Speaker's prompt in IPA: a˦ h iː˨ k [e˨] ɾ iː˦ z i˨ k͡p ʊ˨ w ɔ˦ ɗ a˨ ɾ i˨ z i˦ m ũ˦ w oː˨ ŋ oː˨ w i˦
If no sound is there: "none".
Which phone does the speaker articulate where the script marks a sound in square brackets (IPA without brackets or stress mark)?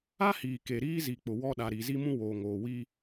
e˨